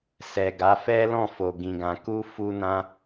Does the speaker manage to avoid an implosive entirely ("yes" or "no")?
yes